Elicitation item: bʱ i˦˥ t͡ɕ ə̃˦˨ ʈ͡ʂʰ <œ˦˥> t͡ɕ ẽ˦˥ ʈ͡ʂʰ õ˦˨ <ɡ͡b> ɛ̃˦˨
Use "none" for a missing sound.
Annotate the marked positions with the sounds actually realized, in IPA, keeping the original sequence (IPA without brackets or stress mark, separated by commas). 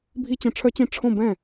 œ˦˥, b